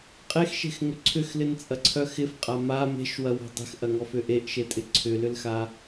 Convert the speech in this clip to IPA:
qʼ e x ʃ e̤ x ŋ ʏ ǀʰ ʏ x l ɪ n t͡sʼ ɐ ǀʰ œ x ɪ f qʼ a m a m e̤ ʃ w ɐ w ɔ̤ dˤ e̤ x ʔ ɐ ŋ ɔ f ʏ ʔ e ʔ ʃ e tʼ ɪ ǀʰ ʏ l ʏ l x a

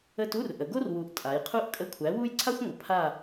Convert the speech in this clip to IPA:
ə˦˨ t u˧˥˧ r ʔ ə˩˧ ɡ o˥ r w u˩˥ ʔ tʼ a˩˧ j qʰ u˥ ʔ kʼ ə˧˥˧ kʷʰ æ˩˥ w u˥ j ǀʰ a˥ xʷ ŋʷ ə˩˧ pʰ a˦˨

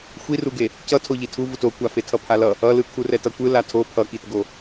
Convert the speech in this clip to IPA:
xʷ i r u ɡ e | c ʌ tʰ o ʎ i tʰ u v u t o kʷ a f e tʰ ʌ pʰ a l ʌ | ʌ l ɯ kʰ u r ɛ t ʌ kʷ ɯ l a tʰ o pʰ ʌ k i t ɡ o

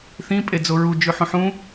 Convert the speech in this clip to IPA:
θ ĩ pʼ e d͡z o ɹ u d͡ʒ ʉ ħ ũ ħ ũ

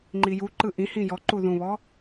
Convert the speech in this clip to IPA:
ŋ͡ǃ i j u ǃ ɯ ʔ ĩ h ĩ j ɔ ǃ u ð ũ β ɔ

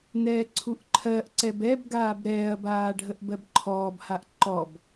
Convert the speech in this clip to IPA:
n ɛː ǀʰ u ʔ ǃʰ ɜ ʔ ǀ ɛ b ɛ b ɡ aː b ɾ ɛː ɐ̯ b aː ɖʱ ə ʔ b ɜ b ǃʰ ɔː b h a ʔ ǃ ɔ b

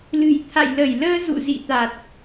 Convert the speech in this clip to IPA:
l ɨ̤˨˩ j t̪ʰ a̰˧˨ j l ə˧˩ j l əː˧ z ṵ˧˨ z ḭ˧˨ t̪ a˨˩ t̚

